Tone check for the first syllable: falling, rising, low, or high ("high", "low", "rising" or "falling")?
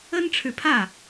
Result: high